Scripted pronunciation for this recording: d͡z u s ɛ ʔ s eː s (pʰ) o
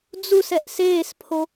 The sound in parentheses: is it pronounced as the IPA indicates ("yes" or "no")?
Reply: yes